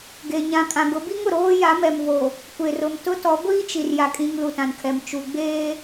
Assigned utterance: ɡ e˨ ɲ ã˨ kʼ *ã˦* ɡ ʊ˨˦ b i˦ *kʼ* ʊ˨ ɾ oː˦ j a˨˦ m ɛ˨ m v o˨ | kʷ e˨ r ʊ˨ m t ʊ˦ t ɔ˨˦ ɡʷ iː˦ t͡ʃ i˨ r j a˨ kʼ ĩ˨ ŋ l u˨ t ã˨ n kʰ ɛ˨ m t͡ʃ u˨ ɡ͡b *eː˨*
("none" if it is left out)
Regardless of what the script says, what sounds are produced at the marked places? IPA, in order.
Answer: ã˨, ŋ, eː˦

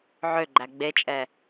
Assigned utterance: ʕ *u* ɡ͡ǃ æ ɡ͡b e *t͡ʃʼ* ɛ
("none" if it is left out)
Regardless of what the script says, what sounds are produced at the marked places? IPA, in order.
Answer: ø, t͡ʃʼ

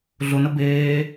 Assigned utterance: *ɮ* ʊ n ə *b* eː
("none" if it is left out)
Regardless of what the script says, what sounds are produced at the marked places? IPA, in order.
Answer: ɮ, b

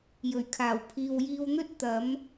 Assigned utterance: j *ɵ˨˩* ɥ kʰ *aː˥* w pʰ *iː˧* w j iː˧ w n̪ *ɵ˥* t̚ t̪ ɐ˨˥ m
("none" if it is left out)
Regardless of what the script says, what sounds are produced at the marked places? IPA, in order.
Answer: ɵ˨˩, aː˨˩, iː˨, ɵ˥

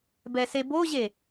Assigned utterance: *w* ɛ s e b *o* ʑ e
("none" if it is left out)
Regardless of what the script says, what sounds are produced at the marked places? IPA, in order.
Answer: b, o

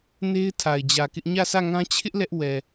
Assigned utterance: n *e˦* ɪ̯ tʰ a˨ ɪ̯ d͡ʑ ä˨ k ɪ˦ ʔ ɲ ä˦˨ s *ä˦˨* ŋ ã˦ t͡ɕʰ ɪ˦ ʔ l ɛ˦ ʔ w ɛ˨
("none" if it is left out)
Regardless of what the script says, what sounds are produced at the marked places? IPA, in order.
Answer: e˦, ä˦˨

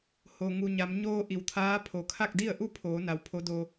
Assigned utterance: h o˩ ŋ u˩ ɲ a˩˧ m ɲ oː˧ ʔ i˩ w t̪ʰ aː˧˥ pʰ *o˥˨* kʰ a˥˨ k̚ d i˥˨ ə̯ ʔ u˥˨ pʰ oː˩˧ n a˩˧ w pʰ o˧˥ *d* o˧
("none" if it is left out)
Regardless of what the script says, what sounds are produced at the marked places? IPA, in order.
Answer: o˩, d

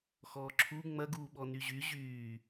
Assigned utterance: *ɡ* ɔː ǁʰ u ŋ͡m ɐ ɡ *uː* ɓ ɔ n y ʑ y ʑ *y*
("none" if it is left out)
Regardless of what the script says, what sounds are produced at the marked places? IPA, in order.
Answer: x, uː, yː

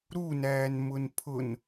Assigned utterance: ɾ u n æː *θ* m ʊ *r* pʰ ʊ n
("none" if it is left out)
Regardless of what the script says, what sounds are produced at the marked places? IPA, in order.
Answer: n, n

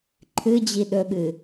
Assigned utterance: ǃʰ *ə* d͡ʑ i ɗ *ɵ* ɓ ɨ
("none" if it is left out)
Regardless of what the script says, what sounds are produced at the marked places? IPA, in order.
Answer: ɨ, ɵ

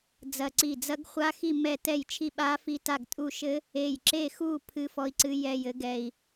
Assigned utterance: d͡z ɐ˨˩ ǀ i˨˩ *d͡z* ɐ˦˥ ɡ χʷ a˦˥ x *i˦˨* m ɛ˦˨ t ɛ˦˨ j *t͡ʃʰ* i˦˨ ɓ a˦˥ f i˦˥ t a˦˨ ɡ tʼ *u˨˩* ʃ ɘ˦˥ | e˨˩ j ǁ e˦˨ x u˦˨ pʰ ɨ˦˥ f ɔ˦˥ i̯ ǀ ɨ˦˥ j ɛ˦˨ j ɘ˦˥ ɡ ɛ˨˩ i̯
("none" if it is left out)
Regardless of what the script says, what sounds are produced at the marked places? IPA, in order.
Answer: d͡z, i˦˨, t͡ʃʰ, u˦˨

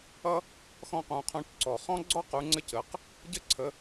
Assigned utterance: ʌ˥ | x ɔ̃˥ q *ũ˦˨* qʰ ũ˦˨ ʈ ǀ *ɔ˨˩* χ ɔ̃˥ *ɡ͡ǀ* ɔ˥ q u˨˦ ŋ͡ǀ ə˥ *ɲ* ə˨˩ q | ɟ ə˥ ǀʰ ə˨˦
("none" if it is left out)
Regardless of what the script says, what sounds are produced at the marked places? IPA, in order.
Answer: ũ˨˦, ɔ˨˩, ɡ͡ǀ, c

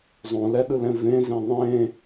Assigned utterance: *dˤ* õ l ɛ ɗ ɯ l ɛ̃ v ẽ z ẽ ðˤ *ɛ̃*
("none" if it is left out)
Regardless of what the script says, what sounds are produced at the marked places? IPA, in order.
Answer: zˤ, ẽ

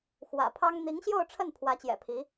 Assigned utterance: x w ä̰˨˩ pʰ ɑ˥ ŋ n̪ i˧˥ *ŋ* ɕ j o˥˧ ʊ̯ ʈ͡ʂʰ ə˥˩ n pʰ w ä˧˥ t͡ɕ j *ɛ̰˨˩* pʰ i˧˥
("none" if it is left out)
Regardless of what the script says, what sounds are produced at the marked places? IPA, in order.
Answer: ŋ, ɛ̰˨˩

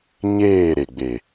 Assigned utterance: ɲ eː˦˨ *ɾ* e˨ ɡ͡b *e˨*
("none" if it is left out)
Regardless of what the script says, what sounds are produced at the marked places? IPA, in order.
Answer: ɾ, e˨

